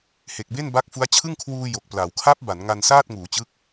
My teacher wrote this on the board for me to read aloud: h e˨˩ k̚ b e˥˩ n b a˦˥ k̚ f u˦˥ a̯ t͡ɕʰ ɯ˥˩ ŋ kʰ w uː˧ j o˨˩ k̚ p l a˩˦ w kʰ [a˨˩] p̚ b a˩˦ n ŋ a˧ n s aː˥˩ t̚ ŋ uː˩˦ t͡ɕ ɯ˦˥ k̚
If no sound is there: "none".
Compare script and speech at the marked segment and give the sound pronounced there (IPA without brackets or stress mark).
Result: a˦˥